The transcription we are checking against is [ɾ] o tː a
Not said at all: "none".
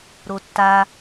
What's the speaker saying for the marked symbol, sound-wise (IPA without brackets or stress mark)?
ɾ